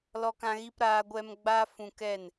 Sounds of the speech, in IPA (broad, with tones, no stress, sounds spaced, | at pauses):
l ɔ˧ k ã˧ ɣ i˧ p ɾ aː˧ ɡʷ ɛ˧ m ɡ͡b a˧ f ũ˧ k ɛ˦˨ n